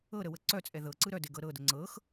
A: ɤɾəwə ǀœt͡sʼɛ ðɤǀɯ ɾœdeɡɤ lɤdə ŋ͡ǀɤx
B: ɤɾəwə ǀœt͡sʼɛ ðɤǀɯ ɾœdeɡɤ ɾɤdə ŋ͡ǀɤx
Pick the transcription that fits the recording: B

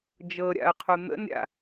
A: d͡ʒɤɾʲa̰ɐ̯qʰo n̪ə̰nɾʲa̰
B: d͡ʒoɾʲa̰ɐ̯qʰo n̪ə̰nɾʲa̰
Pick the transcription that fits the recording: A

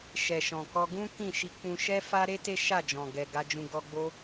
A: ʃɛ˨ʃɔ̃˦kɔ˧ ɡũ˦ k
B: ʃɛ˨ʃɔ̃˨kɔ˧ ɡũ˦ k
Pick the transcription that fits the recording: B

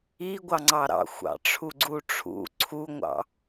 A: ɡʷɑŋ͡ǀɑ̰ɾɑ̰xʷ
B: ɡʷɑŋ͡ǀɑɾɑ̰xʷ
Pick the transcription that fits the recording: B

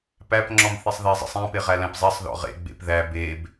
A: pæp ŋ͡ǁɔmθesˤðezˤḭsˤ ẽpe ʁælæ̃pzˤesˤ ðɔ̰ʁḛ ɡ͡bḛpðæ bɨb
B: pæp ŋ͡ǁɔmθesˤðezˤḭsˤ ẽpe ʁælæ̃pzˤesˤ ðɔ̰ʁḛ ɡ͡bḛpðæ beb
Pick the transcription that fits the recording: B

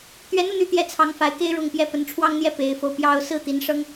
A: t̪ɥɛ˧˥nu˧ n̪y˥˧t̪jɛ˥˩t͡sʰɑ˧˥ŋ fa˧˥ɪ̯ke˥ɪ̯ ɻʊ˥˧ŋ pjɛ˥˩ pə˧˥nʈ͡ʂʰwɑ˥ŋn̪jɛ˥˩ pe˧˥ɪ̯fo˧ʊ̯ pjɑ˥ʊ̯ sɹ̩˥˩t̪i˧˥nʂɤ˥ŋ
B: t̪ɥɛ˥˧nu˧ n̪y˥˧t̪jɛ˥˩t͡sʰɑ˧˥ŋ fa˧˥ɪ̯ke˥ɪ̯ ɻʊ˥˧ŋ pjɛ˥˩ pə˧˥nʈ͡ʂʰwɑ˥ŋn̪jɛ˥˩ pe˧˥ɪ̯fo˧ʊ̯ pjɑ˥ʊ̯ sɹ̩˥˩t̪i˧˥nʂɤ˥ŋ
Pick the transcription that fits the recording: A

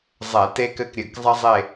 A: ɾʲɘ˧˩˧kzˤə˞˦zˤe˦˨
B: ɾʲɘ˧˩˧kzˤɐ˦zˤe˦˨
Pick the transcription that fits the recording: B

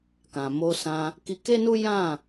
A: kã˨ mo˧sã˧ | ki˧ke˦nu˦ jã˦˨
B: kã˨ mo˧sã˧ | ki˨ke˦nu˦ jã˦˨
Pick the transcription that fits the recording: A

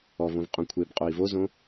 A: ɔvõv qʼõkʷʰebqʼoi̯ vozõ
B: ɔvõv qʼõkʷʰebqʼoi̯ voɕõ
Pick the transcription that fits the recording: A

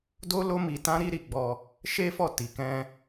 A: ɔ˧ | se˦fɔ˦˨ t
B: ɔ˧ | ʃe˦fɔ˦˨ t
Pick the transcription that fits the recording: B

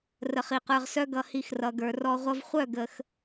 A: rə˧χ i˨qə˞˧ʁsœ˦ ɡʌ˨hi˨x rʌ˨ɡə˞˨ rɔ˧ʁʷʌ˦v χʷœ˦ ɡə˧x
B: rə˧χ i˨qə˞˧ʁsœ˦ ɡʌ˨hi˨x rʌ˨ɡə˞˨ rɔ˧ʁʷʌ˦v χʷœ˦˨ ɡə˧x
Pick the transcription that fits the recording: B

